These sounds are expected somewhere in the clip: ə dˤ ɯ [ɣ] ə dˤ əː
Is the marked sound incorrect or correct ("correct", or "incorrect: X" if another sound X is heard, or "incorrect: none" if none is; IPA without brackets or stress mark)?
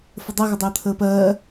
correct